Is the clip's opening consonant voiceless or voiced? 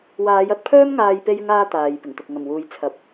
voiced